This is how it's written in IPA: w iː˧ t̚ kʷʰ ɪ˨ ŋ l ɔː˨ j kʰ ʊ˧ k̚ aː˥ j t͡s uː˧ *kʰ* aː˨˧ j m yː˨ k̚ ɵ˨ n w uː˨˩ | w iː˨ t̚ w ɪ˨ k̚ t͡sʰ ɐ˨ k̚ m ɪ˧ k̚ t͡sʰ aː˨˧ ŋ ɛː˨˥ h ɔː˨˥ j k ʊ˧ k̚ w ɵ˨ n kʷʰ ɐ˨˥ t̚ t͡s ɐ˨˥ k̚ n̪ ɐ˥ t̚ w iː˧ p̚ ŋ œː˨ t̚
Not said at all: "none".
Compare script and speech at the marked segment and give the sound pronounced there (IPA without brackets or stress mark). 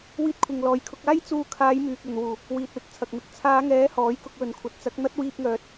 kʰ